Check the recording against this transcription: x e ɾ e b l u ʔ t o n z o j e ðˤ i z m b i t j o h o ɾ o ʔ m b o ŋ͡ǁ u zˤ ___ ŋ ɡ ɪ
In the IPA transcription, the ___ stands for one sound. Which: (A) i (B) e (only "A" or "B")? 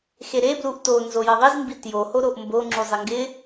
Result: A